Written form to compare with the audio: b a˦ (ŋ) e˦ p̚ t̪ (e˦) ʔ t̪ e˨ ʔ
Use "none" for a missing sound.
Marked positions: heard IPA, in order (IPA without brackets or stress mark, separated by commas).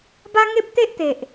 ŋ, e˦